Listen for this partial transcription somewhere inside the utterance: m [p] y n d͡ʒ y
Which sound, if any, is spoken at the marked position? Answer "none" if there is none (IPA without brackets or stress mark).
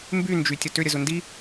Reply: b